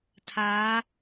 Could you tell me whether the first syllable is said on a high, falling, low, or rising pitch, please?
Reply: rising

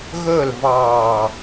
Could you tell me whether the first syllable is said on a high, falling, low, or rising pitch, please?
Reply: falling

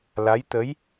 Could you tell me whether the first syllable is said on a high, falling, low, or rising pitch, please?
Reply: rising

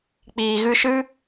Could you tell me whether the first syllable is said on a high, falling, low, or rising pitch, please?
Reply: low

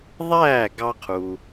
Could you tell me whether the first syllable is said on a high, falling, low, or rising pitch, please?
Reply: falling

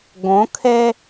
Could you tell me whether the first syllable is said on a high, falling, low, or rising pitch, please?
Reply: rising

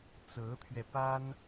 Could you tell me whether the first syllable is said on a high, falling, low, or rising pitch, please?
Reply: rising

